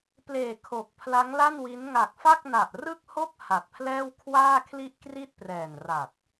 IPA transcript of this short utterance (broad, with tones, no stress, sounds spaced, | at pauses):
p l eː˨˩ kʰ o˨˩ k̚ pʰ l a˦˥ ŋ l a˥˩ n w i˦˥ n ŋ a˨˩ k̚ f a˥˩ k̚ n a˨˩ ʔ r ɯ˥˩ k̚ h o˥˩ k̚ h a˨˩ t̚ pʰ l ɛː˥˩ w kʰ w aː˥˩ kʰ l i˥˩ ʔ k r i˥˩ t̚ p r ɛː˨˩ n r a˨˩ t̚